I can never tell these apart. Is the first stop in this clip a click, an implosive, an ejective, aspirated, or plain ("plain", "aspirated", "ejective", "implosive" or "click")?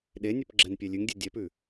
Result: implosive